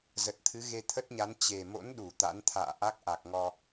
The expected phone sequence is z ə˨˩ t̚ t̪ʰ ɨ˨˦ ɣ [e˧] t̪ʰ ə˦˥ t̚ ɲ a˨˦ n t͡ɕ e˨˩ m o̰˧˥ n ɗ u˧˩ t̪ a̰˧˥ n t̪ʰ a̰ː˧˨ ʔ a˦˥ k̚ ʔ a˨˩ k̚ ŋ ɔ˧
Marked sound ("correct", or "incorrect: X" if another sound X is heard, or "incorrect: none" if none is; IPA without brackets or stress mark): correct